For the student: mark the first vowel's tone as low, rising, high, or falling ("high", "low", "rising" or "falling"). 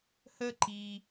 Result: high